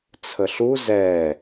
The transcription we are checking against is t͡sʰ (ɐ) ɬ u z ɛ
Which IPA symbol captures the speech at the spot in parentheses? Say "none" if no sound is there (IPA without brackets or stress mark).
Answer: ə